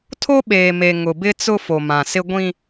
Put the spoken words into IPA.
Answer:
tʰ o˦ ɓ eː˨ m e˨ ŋ ʊ˨ b ɪ˦ t͡s ʊ˦ f o˨ m ã˨ s ɪ˦ ɡʷ ĩ˦

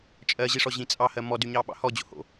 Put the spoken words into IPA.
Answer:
t͡ʃʼ ɜ ʑ i ʂ ɔ ʑ ĩ t͡sʼ ɑ h ɜ m ɔ d y ɲ ɑ ɓ ɑ̰ h ɔ d͡ʑ o̰ h o̰

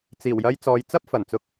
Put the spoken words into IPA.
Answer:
t͡s iː˨˩ w j ɐ˧ j t͡s ɔː˨˧ j t͡s ɐ˥ p̚ f ɐ˨˩ n t͡s ʊ˧ k̚

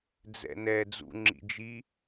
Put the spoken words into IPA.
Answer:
d͡z ɛ̰ n ɛ d͡z ṵ ŋ͡ǁ ḭ d͡ʒ i

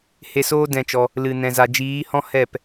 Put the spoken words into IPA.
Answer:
h e˧ s oː˦ d ɛ̃˦˨ t͡ʃ ɔ˧ | l ɨ˨ n ɛ̃˨ z a˨ d͡ʒ iː˨˦ h ɔ̃˦ h ɛ˦˨ p

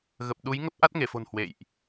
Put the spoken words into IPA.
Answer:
ɣ ə˨˩ p̚ ɗ u˨˦ j ŋ ə˦˥ p̚ ʔ a˦˥ t̚ ŋ e˧˩ f o̤˨˩ n h w ḛ˧˨ j ʔ

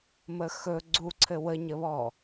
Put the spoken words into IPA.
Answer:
m ə x ɵ ɡ͡ǀ u ǀʰ ɘ w ə ɲ ə β ɔ

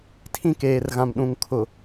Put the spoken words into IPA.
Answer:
tʰ ĩ˦ k eː˨ r ɣ ã˨ m ɗ ũ˨ ŋ kʰ ʊ˨

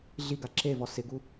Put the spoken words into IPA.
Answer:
ɮ i ɡ a ǁ e v ɔ s ɪ ɡ u

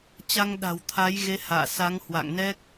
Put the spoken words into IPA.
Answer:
t͡ɕ a˧ ŋ ɗ a̤˨˩ w t̪ʰ a˨˦ j ɣ e˨˦ h a̰ː˧˨ s a˨˦ ŋ h w a̰˧˨ ŋ n ɛ˦˥ k̚

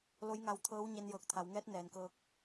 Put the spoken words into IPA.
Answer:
l o˧˥ j ŋ a˧ w t̪ʰ ɤː˧˥ w ɲ e˧ n j ɤː˧˩ k̚ t̪ʰ a˩˧ w ŋ ɛː˧˥ t̚ n ɛː˩˧ n k ɤː˧˥ k̚

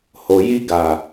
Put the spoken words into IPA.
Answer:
h o˨ j i˧ ɡ a˨

